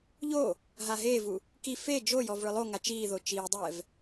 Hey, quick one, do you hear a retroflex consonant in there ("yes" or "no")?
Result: yes